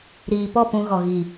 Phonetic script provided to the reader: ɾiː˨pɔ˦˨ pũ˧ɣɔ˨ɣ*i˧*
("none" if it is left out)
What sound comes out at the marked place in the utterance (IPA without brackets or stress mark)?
i˨